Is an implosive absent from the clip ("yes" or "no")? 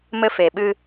no